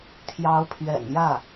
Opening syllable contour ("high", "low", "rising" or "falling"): rising